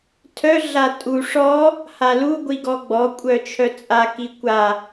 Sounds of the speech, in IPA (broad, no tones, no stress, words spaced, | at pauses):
tʰœ ɮatʼu ʂɔ | halu ɡʷiɡɔɡ͡bɔ kʷʼœt͡ʃʰœt͡sʼa kikʷa